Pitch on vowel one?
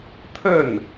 falling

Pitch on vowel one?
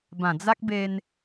low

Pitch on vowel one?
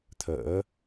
rising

